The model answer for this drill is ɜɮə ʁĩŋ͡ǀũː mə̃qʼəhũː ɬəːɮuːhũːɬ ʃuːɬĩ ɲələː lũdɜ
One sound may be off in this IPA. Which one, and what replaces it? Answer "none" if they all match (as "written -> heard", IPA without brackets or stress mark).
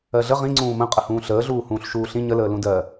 none